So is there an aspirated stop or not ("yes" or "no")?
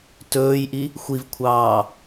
yes